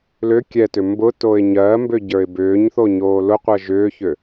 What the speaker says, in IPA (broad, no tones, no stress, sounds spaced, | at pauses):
l ʏ kʲ ɛ t ʏ m b ʊ t o ɪ̯ ɲ ɜ m b ʏ ɟ ə˞ ɪ̯ b ʏː ɲ θ o ɲ oː l ʊ qʷ ɜ ʒ ʏː ç ʏ